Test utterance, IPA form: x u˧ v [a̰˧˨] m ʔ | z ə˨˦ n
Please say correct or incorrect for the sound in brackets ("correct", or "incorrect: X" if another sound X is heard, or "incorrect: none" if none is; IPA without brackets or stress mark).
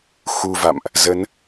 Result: correct